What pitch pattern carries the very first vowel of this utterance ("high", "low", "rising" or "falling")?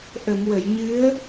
low